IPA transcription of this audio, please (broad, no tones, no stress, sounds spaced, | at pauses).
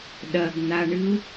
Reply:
ɗ ɐ ɡ n̪ a ɳ ɨ u̯